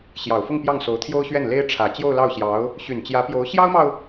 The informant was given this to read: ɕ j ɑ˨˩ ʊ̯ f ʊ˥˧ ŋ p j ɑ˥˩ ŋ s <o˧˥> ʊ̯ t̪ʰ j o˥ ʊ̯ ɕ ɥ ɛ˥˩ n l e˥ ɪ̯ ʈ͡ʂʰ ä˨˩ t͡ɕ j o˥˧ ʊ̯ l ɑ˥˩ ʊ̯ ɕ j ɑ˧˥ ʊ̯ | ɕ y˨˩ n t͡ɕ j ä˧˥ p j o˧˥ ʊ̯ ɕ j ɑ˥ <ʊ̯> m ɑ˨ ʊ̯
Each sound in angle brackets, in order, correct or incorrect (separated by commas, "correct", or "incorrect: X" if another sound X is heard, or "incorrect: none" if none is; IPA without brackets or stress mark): correct, correct